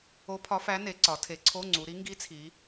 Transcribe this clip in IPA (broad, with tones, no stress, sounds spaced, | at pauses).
o˧˥ pʰ ɒ˧˥ f æ˧˥ n e˩˧ ǀ ɒ˩˧ tʰ e˩˧ ǀʰ o˧˥˧ ŋ͡ǀ u˩˧ ɾ i˧˥ ŋ ɡ i˧˥ t͡sʰ i˩˧